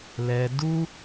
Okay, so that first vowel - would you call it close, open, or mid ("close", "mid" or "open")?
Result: mid